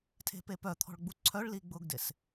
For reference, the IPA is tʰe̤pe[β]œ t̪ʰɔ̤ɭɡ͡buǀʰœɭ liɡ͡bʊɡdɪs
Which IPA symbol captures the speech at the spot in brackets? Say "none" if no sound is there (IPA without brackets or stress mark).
p